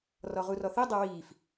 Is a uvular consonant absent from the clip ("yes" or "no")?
no